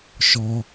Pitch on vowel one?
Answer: low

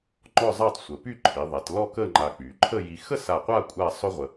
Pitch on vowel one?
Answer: falling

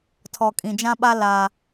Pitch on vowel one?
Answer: low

